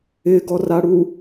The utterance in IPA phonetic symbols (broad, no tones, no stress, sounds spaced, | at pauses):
ɪ ɡ ɔ r a ɽ u